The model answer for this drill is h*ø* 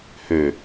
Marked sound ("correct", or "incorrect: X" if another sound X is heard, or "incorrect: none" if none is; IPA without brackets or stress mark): correct